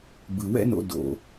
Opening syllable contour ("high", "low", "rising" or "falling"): low